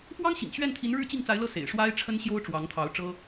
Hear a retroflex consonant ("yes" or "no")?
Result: yes